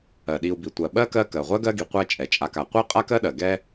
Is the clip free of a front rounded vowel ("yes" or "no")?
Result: yes